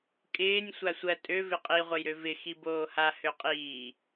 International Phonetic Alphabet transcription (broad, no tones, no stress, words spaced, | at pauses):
kʼɪːnʲ sʷasʷɜ tʼø vɪqʼi ʁʷɘjɾøvɪ xiboːha høqʼiː